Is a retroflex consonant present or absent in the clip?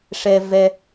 present